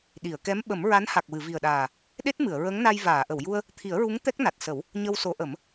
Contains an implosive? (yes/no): yes